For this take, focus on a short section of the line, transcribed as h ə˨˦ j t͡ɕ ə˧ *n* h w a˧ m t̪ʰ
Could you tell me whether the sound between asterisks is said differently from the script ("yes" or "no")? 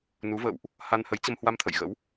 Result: yes